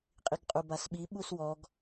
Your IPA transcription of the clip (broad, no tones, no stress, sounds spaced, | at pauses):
qʼ i ɡ qʼ u b a s ɓ i ɓ u s w ɔ ɡ